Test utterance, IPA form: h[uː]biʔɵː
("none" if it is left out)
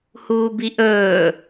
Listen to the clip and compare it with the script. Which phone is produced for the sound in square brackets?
uː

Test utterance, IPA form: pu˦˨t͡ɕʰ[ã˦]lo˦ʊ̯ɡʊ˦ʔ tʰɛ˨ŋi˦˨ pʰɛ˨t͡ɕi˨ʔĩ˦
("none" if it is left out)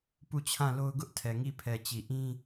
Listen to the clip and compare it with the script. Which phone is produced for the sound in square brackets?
ã˦˨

